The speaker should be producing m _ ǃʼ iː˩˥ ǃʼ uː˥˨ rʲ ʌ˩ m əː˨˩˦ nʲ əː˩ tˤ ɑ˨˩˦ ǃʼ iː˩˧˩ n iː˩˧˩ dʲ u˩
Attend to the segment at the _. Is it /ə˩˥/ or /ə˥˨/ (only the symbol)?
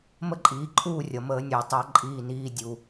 ə˥˨